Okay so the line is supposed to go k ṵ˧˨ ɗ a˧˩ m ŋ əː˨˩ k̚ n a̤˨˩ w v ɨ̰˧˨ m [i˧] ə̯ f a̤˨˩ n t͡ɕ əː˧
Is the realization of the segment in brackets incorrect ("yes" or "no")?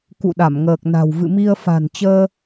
no